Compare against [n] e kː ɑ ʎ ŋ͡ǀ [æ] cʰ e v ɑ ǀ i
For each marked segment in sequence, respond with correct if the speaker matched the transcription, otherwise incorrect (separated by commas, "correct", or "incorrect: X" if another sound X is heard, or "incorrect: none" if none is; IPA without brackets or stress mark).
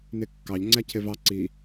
correct, correct